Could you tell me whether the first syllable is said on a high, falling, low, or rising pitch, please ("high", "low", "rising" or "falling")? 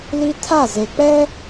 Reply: high